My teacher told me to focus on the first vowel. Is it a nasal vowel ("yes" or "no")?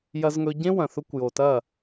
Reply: no